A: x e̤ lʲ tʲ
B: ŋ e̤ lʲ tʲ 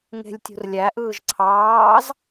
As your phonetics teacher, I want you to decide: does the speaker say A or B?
B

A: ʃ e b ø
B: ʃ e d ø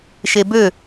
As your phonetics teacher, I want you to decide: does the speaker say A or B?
A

